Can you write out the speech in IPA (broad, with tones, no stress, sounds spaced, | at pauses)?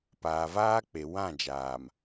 p aː˨ v aː˦ k͡p e˨ w ã˦˨ d͡ʒ aː˨ m